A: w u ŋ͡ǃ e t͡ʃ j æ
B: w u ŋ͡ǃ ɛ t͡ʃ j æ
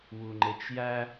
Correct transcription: A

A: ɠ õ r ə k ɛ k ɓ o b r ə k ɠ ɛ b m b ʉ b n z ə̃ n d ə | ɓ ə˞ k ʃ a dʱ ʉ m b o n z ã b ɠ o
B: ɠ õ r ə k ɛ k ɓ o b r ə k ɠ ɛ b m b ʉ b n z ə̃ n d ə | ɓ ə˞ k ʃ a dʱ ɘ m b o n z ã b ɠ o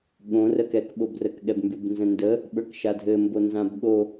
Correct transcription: B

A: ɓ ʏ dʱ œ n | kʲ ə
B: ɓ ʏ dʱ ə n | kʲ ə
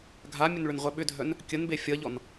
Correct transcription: A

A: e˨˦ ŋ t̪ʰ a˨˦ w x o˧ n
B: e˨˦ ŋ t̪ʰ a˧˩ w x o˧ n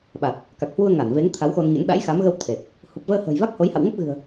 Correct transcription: A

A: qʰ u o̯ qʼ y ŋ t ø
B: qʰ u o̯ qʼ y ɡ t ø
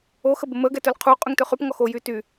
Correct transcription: A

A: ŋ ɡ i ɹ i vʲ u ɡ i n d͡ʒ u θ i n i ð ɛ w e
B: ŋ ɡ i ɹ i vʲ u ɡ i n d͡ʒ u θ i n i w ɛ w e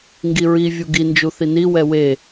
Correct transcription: B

